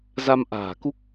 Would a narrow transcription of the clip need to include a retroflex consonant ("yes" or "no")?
no